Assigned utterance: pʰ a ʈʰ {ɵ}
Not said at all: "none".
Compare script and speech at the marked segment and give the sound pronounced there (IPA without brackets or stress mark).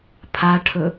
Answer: ɵ